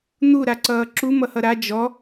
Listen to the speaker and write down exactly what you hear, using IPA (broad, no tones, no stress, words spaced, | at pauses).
n̪u ɾaǀʌːǁu mʌhʌɾa d͡ʒɔ